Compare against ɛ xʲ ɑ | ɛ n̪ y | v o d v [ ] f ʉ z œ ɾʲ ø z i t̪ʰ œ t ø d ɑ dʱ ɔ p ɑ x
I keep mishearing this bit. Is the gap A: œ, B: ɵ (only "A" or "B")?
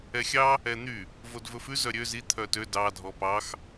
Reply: B